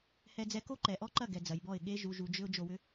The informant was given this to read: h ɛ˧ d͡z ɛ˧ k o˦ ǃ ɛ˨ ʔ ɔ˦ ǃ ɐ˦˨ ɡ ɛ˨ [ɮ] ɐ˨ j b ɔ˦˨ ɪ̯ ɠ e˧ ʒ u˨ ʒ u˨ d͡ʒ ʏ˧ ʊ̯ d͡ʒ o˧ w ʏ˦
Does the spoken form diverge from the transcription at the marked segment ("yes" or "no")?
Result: yes